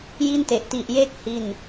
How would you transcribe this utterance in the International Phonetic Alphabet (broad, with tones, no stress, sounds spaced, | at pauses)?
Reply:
j i˥˩ n t e˨˩ ʔ t i˨˩ ʔ j eː˦˥ k̚ h i˥˩ n